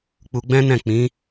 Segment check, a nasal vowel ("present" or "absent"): present